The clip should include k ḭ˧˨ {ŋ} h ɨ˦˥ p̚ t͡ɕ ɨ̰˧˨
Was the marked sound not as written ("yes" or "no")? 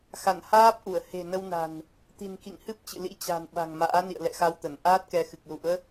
no